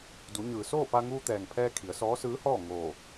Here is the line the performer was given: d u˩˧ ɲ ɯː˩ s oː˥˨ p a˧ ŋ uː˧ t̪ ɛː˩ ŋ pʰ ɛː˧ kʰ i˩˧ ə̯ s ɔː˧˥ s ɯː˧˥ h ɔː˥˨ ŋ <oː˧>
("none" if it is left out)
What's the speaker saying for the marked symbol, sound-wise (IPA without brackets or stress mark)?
oː˧˩